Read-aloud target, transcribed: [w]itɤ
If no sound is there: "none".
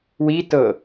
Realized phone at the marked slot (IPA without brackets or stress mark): w